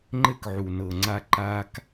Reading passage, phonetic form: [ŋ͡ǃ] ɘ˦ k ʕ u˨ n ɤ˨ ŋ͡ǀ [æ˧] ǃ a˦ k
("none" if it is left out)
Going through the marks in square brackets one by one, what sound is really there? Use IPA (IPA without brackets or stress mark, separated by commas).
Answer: ŋ͡ǃ, a˧